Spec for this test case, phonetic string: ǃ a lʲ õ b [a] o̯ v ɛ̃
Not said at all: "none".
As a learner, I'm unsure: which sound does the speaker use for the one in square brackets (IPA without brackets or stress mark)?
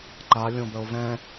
ə